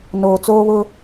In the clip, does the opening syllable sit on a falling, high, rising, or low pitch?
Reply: low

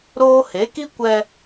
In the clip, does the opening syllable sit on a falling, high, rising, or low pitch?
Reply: high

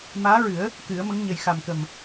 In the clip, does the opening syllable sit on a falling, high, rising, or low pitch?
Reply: rising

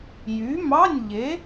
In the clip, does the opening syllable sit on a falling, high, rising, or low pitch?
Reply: rising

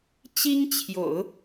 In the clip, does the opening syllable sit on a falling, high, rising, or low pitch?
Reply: high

